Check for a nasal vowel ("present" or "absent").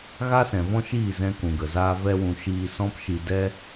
present